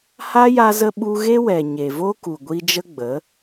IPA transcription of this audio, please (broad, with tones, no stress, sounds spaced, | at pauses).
h a˦ j a˧ z ə˧ ɓ u˧ ɣ e˦ w ɛ˨ ɲ e˨ v o˦ k u˨ ɡʷ i˧ d͡ʒ ə˦ ɡ͡b ə˨˦